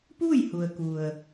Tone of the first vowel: falling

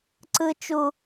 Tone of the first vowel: high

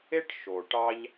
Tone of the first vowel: high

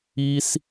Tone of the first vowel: high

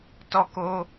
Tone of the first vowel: high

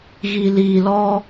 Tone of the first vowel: low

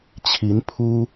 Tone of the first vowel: rising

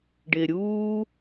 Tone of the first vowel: low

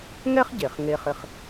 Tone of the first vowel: high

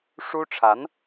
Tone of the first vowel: high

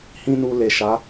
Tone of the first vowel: high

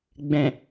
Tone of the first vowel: low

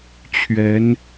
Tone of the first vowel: rising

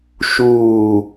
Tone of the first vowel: falling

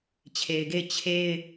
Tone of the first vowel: low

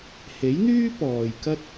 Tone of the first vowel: rising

